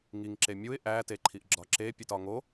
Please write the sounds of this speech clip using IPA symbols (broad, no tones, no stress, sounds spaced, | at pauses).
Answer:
ŋ i ŋ ǁ e mʲ u ɪ̯ ʔ æ t e ǃʰ i ʔ ɡ͡ǁ ɒ ǁ e pʲ e t ɒ ŋ o